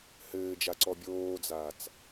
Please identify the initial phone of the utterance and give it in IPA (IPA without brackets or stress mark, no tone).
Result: h